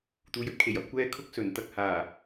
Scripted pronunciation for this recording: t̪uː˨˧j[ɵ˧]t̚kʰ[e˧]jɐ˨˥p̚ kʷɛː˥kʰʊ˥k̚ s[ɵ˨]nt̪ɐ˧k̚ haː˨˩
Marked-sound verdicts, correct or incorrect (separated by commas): incorrect, incorrect, incorrect